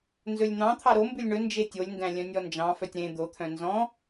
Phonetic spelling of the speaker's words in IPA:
n z ɵ lʲ n̪ ɑ̃ t̪ʰ ɑ ɾ o m b ʉ lʲ ɳ ɵ n d͡ʒ e tʲ o lʲ n d æ̃ lʲ œ̃ nʲ ɔ n d͡ʒ ɑ̃ f œ tʲ ɾ ẽ d̪ o t̪ʰ œ̃ n z ɔ̃

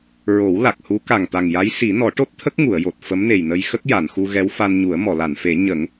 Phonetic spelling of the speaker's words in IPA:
ɹ o˨˩˦ w l a˨˩ k̚ h u˧˥ k a˨˩ ŋ t̪ a˨˩ ŋ j a˧˥ j s i˨˩˦ n ɔ˨˩˦ ʈ o˦˥ t̚ t̪ʰ ə˦˥ k̚ ŋ u˨˩˨ ə̯ j o˨˩ t̚ f ə˧˥ m n e˨˩ j n ə˧ j x ə˦˥ k̚ j a˨˩˨ n x u˧ ɣ ɛ˧˥ w f a˧ n ɲ u˨˩˦ ə̯ m ɔ˨˩˨ l a˨˩˨ n f e˨˩˦ ɲ ə˨˩˦ ŋ

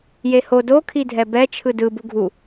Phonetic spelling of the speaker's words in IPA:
j e h o d o kʰ i dʱ ɛ b ɛ t͡ʃʰ ɯ d ɯ b u ɡʱ u

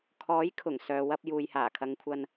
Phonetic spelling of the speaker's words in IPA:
kʰ ɔː˨˥ j kʰ ʊ˨˩ ŋ s œː˨ w ɐ˧ p̚ j uː˨ j h aː˨˩ kʰ ɐ˨˧ ŋ kʷʰ ɐ˧ n

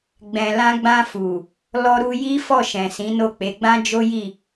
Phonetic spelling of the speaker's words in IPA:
ɡ͡b ɛ̃˨ l ã˧ ɡ͡b ã˧ f u˨ | l ɔ˧ ɾ u˧ j i˦ f ɔ˦˨ ʃ ɛ̃˨ s ĩ˨˦ n o˦˨ k͡p e˨˦ ɡ͡b ã˦ d͡ʒ o˦ j i˦˨

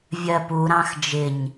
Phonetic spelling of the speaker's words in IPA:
vʲ ɜ p u ɾ ɑ̃ x d͡ʒ ɪ ɲ

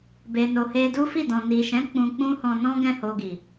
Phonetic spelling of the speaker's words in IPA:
b e˨ n o˨ h e˧ d u˦ f i˦˨ d ɔ̃˨ n i˨ ʃ ɛ̃˨˦ k͡p ũ˧ k͡p ũ˦ h ɔ̃˧ n ɔ̃˦ ɡ ɛ̃˦˨ h o˧ ɡ i˨

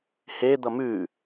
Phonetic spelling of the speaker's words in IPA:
h e d̪ ʌ m ʉ

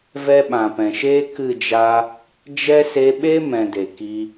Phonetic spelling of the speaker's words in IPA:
v ɛ˦ ɓ ã˨ p ɛ̃˨ ʃ eː˦ k ɨ˦˨ d͡ʒ a˧ | d͡ʒ ɛ˦ s e˧ ɓ e˦ m ɛ̃˧ d e˨ k i˧

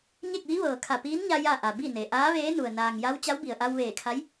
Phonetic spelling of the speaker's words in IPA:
ɲ e˥˨ k̚ ʋ i˧˥ ʋ ɤː˩ kʰ a˧˩ p iː˧˥ n ɲ a˧ j a˥˨ ʔ a˩ b i˥˨ n e˩ ʔ aː˧˥ ʋ eː˧˥ n u˩ ə̯ n aː˩ ŋ j a˧˥ w t͡ɕ a˧˥ w b i˩ ə̯ ʔ a˧ w ʋ eː˧˩ kʰ a˧˥ j

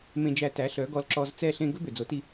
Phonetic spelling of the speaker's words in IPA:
m ẽ˧ d͡ʒ æ˧ t æ˩˥ ɬ œ˩˥ ɡ ɔ˧ l ǁ ɔ˧ z t͡s ɛ˥˩ ɬ ẽ˥ ɡ ɵ˥ b ø˩ d͡z o˩˥ t i˧

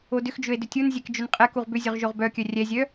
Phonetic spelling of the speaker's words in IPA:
o d ʏ x d͡ʒ ɵ e̯ d ʏ tʲ u n zʲ ɛ k d͡ʒ ɵ n qʼ ɛ k u ʁ b ʏ zʲ ɵ ʁ ʒ o ʁ b œ kʲ œ rʲ ɛ zʲ œ

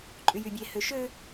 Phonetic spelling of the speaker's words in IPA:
ǃʼ y j y bʲ e h ø ʃ ø

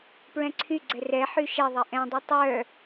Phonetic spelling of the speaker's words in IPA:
p ɹ ɛ̃ ǀʰ y ɡ͡ǀ ɛ r ɛ ħ y ʃ ɛ ðˤ ɛ ʔ ɛ̃ dˤ ɛ tˤ œ

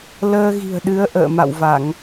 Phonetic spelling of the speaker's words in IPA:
l əː˧ ɣ i̤˨˩ ə̯ ɗ ɨ˨˦ ə̯ ʔ ə̰ː˧˨ m a̰˧˨ w v a˧˩˨ ŋ

